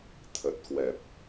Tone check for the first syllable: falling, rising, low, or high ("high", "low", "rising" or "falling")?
low